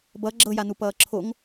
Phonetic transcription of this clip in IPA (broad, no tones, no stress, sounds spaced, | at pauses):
b ʌ ɡ͡ǁ ɤ j a n u p ʌː ǁʰ o ŋ